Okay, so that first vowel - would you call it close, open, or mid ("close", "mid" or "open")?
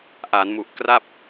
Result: open